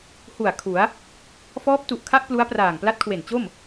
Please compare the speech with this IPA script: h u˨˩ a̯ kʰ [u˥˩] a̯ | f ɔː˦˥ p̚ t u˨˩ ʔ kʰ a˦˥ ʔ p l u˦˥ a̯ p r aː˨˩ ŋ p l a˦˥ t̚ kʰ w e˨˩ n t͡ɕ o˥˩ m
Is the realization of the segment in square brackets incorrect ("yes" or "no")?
yes